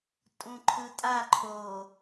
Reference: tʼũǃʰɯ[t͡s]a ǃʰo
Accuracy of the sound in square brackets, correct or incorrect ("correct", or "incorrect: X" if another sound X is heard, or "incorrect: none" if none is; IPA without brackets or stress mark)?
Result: incorrect: tʼ